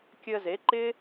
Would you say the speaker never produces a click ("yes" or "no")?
no